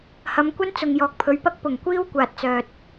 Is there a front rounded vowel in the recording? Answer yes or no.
yes